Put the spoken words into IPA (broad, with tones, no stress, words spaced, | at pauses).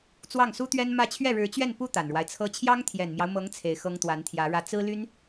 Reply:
t͡swɑ˥˩ŋsu˥t̪ɥɛ˥nmä˥˧ t͡ɕʰɥɛ˥˩ɻɻ̩˧˥t͡ɕɥɛ˥˩npu˥ t̪a˨˩nɻwa˦ɪ̯t͡sʰɤ˥ t͡ɕʰjɑ˥ŋt̪ʰjɛ˨˩nmjɑ˦ʊ̯mɤ˧˥ŋ t͡sʰe˧˥ɪ̯xɤ˥ŋ t̪wa˧˥nt̪ʰjä˧˥ɻä˥˩ t͡sɹ̩˥ly˥n